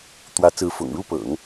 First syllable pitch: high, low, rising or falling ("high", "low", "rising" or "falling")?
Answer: rising